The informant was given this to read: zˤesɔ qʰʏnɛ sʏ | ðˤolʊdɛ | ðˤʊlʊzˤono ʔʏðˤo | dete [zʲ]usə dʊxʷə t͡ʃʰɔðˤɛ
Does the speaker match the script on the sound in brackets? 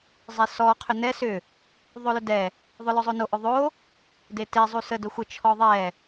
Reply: no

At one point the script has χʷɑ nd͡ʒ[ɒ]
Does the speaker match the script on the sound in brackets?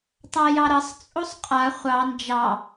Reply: no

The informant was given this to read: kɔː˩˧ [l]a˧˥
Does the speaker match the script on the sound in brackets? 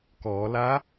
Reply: yes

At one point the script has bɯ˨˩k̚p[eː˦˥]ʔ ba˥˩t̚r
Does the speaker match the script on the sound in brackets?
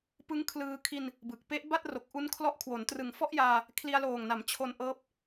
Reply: no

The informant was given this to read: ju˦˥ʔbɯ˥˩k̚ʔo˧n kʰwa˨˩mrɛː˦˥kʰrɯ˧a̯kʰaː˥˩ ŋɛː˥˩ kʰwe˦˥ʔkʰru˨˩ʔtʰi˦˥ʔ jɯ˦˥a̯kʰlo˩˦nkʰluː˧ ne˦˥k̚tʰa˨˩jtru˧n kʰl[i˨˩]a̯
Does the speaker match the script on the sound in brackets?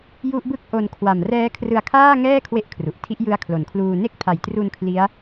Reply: no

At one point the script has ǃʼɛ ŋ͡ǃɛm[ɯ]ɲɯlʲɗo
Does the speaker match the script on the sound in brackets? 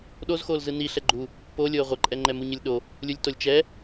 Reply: no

